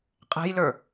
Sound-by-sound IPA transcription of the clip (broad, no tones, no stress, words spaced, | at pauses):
qʼɛ̤jlə˞